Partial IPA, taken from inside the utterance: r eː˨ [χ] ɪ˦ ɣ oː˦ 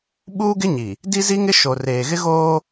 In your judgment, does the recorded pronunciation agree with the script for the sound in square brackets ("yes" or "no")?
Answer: no